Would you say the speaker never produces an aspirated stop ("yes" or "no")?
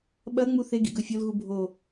yes